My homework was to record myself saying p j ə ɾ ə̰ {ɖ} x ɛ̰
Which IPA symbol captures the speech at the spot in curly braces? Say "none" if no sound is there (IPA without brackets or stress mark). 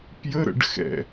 ɖ